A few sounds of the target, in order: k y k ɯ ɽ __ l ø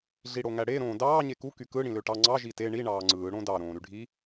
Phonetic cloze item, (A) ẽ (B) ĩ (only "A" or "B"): B